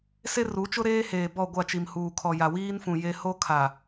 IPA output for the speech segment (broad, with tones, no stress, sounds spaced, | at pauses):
s e˦ r u˨˦ t͡ʃ ʊ˦ ɾ eː˦ h eː˨ b ɔ˦˨ ɡʷ a˦˨ t͡ʃ i˨ m h uː˨ kʰ ɔ˨ j a˨ w iː˦ n f ũ˨ j e˦ h o˦ kʰ a˨